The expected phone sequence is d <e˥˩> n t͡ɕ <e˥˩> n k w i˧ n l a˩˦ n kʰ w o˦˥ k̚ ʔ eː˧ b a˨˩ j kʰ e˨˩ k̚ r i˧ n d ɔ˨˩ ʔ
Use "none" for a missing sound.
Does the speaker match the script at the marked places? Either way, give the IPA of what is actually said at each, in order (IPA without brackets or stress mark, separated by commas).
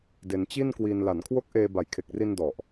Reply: e˧, i˥˩